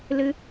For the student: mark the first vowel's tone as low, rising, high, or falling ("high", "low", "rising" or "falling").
high